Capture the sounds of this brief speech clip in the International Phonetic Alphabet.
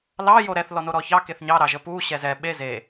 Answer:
l ɑ j o ɾ ɛ θ l ɔ n o ɾ ɔ ç ɑ k e θ ɲ ɑ ɾ ɑ ʒ ə p u ɕ ɛ z ɛ ɓ e z e

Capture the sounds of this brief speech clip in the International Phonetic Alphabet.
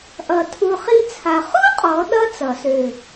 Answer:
ʔ ʌ˧˩ tʰ u˧ χ i˥ t͡sʰ a˧˩ χ u˥ qʼ ɔ˩˧ ɗ ʌ˧ t͡s ʌ˩˧ s ø˧˩

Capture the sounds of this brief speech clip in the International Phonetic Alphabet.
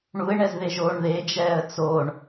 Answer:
ɳ u ɪ̯ ɳ ɛ z ð e ʒ oː ɳ ð e d͡ʒ ɛː ə̯ t͡s o ɳ

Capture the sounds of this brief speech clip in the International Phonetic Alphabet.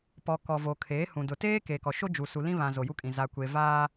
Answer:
p ɔ˨ k ɔ˨ v o˨ kʰ eː˨˦ h ũ˨ d ʊ˨ t eː˦ k e˨ k ɔ˨ ʃ o˦ d͡ʒ u˨ s u˨ l ĩ˦ β ã˨ z o˨ j u˦ kʼ ĩ˨ z a˨ kʷ e˨ v aː˦

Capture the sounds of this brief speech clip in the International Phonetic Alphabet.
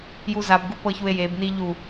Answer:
j u z a b ɡ u p ɤ ç u e̯ j e b n i ʎ u

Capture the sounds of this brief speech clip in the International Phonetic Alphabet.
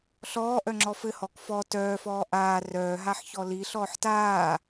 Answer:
ɬ ɔː ʔ œ ŋ͡ǁ ɔ f ɘ h ɔ k f ɔ t œː f ɔː ʔ aː r œː ɦ a ħ ç ɔ l i ɬ ɔː ħ t aː

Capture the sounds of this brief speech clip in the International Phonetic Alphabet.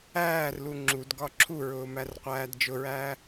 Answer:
æː r l u ŋ͡ǁ u d ɡ ɒ ǁʰ u ɹ ʊː m æ r qʷ æː d d͡ʒ ʊ ɹ æː

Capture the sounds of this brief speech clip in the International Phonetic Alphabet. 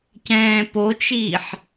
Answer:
c ɛ̃ː p o t͡ʃ iː ħ

